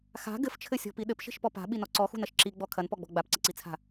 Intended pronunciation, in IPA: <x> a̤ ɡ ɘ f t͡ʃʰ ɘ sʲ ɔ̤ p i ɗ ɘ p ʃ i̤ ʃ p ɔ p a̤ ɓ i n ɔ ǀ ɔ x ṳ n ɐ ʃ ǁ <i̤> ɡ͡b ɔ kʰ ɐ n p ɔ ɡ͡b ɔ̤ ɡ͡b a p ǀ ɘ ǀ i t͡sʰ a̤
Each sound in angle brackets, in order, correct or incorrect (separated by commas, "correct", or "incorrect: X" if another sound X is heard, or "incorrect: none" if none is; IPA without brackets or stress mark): correct, incorrect: i